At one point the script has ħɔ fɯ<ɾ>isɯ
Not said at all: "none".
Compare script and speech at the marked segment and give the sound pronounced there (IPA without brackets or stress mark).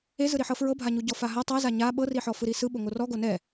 ɾ